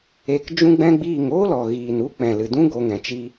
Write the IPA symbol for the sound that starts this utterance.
e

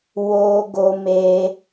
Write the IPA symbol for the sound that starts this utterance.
w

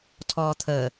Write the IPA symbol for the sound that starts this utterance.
tʰ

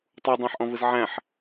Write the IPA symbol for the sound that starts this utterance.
tˤ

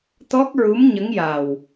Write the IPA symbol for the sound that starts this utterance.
t̪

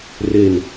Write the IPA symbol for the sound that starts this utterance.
r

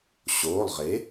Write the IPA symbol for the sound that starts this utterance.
ɕ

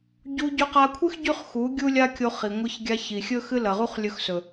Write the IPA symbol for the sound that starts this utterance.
ɟ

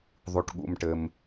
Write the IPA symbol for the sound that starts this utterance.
ðˤ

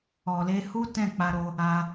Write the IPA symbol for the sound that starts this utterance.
ɔ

